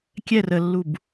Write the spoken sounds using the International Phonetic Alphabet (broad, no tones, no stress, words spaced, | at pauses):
kʲɛr əlːub